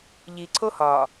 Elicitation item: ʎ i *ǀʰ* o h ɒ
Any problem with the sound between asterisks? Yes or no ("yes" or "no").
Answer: no